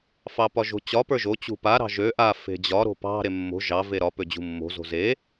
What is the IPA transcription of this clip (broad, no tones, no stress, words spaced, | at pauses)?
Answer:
fɑpɒʒo̤t͡ɕɒ pə˞ʒo t͡ɕṳpa ɾɑ̤ʒø ʔa fe̤d͡ʑɒ ɾo̤pɑ̤ ɾemːo̤ ʒɑ veɾɒ pød͡ʑṳmːo̤ zo̤ze